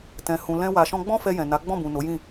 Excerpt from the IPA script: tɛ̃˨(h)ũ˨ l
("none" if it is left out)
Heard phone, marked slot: h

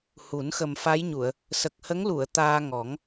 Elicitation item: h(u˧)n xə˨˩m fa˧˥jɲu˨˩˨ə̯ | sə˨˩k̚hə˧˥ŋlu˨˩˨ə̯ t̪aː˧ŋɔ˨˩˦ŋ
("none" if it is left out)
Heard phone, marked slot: u˨˩˦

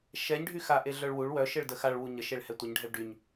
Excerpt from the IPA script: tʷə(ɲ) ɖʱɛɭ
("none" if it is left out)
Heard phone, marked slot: ɲ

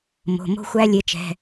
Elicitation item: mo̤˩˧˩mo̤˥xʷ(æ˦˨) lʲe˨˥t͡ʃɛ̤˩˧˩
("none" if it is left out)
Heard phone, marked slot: æ˥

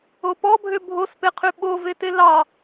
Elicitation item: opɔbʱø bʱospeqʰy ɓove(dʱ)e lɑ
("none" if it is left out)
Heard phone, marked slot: t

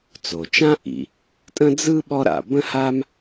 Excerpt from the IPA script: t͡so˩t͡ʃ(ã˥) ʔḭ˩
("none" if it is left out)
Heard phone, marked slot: ã˥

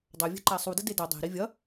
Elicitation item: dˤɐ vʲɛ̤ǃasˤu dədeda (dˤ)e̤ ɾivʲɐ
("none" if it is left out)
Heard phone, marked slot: dˤ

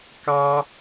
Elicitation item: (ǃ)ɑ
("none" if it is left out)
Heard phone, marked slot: k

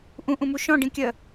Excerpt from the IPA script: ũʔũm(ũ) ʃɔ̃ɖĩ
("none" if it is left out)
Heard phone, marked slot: u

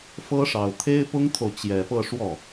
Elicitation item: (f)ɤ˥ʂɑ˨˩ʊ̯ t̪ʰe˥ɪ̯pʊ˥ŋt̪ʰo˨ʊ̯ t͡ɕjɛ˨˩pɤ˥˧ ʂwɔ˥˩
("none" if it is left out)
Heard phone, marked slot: f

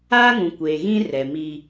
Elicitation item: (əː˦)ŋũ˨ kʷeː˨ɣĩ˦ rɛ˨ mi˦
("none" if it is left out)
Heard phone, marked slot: aː˦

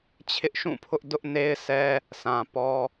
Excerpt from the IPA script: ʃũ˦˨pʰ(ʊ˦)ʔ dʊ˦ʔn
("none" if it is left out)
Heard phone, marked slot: ʊ˦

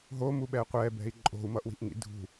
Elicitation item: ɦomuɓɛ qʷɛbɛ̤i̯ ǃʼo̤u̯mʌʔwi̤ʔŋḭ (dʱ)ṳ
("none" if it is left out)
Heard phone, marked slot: dʱ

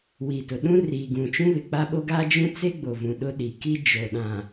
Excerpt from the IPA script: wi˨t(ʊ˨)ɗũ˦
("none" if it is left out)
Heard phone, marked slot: ʊ˨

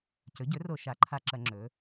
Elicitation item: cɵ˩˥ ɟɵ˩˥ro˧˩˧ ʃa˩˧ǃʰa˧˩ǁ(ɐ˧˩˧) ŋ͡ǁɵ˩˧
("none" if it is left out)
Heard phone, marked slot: ɐ˧˩˧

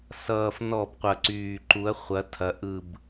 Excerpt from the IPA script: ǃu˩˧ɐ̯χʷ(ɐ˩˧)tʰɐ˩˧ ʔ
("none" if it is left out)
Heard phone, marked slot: ɐ˩˧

